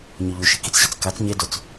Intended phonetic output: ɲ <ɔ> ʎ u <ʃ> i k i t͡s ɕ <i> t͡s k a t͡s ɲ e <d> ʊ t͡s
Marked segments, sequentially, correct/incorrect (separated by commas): correct, correct, correct, correct